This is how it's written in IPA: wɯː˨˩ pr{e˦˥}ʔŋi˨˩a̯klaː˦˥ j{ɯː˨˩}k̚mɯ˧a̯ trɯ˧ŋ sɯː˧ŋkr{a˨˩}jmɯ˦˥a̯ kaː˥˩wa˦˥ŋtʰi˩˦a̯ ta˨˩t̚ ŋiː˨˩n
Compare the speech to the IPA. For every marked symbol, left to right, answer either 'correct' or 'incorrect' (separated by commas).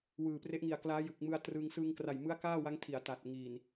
correct, incorrect, correct